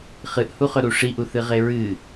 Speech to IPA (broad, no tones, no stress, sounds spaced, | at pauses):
χ ɨ ʔ h u χ ɵ ɾ u ʂ i ʔ u θ ɨ ʁ e ɹ ɨ